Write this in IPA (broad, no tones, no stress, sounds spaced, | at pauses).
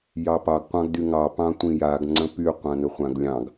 j ɑ p ɑ ɡ qʷ ɑ̃ ɡ d y ŋ ɑ p ɑ̃ tʷ ĩ j a ɡ ŋ͡ǀ ə̃ p y qʷ ã n ə χʷ ã ɡ lʲ ɑ̃ ɡ